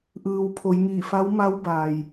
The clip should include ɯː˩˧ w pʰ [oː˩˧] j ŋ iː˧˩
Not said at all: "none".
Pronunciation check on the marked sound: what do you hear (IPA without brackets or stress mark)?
o˩˧